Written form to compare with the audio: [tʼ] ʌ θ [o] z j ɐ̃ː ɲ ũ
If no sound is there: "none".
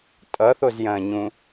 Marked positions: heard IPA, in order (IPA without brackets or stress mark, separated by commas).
tʼ, o